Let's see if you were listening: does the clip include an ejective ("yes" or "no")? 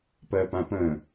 no